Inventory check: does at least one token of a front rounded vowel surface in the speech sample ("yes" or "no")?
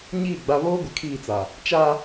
no